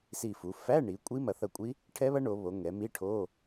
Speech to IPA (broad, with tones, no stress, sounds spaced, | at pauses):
s i˧˩ f u˩˧ f æ˧˥˧ ɳ i˩˧ kʷʼ i˦˥ m ɐ˩˧ θ ɐ˧˩ kʷʼ i˦˥ | ʈʰ ɛ˦˥ β ɐ˦˥ ɳ o˩˧ β o˩˧ ŋ ɛ˩˧ m i˧˥˧ ʈʰ o˧˥˧